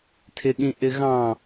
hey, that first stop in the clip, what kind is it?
aspirated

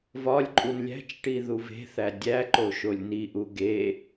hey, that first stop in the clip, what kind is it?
click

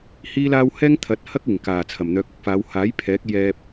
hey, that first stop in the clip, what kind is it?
aspirated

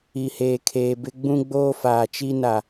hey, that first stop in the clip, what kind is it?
aspirated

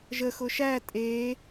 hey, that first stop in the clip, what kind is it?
ejective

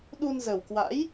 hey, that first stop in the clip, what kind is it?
implosive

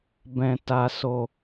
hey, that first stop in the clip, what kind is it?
plain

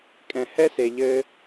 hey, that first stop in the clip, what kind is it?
ejective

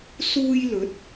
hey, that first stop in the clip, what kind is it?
plain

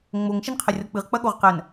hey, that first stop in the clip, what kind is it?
aspirated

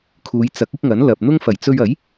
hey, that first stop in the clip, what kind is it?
aspirated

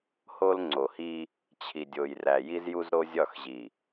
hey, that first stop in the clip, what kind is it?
click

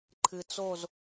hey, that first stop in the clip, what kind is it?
click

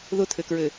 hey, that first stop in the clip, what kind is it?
aspirated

